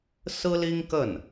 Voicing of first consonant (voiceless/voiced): voiceless